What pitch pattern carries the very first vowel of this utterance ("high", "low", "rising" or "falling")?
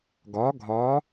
rising